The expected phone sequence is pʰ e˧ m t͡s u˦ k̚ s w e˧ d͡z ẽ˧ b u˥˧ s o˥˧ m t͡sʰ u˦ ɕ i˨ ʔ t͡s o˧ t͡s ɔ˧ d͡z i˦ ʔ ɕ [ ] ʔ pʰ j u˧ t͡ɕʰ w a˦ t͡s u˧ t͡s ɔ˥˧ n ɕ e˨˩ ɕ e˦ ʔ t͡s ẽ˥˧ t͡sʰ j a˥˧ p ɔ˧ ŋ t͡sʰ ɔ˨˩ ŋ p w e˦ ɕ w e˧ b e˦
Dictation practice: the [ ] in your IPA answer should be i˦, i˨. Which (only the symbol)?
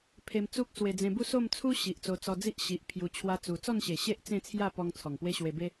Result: i˨